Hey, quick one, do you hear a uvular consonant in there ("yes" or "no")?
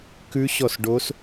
no